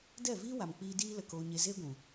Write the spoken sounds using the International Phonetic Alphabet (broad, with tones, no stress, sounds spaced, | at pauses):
d ɛ˦˨ v iː˦ w a˨ m k͡p iː˧ d iː˦ l ə˧ k oː˧ ɲ e˧ z eː˦ ɡʷ ũ˨